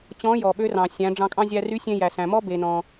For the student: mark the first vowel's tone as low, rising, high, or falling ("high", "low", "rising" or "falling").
rising